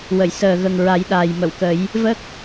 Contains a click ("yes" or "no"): no